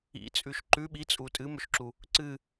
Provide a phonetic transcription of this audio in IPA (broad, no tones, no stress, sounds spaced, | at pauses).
ḭ t͡sʼ ʉ ʃ ǃ ʉ ɓ i t͡sʼ u tʼ ɨ m ɵ ʃ ǁ u | ǀ ɨ